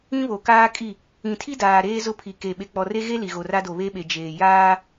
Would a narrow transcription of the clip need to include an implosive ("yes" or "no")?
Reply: yes